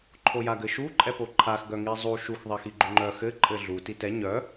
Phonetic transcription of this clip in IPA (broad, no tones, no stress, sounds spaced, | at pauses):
ǃʰ o j a ɡ ɘ ʃ u ǃʼ ɛ p o ǃʰ a x ɡ œ ŋ i zˤ u ʃ u x ðˤ i x i ɡ͡ǃ u ŋ͡ǃ œ x ɘ ǃʼ ɘ ɮ u t i t ɛ ɲ œ